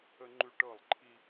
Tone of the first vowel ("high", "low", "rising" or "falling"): high